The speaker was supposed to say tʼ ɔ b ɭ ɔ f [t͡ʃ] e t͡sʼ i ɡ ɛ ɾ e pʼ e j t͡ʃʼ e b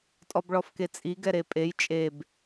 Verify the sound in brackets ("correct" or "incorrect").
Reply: incorrect